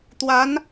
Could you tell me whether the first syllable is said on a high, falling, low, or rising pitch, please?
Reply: rising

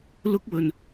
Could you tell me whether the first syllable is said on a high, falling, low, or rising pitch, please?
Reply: high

